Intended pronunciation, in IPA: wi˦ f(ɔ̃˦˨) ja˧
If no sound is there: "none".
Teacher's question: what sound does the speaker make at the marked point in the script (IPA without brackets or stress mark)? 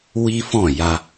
ɔ̃˦˨